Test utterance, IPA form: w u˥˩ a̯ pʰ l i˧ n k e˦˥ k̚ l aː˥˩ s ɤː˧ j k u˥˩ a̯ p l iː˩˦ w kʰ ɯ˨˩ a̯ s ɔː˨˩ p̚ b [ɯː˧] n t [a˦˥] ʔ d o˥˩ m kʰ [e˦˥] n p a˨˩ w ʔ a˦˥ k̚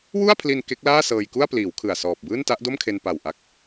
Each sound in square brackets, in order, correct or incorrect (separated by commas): incorrect, correct, incorrect